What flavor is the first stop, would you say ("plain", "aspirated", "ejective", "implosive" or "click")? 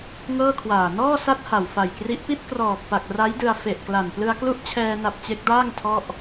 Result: aspirated